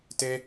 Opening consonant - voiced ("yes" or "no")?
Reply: no